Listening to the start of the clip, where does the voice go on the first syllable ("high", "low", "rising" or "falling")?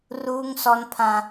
high